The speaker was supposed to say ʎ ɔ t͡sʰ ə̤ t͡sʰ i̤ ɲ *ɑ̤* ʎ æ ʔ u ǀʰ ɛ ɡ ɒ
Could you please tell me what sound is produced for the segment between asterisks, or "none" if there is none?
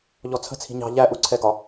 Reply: ɑ̤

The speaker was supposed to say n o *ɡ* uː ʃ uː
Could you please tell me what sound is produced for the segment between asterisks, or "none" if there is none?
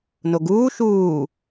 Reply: ɡ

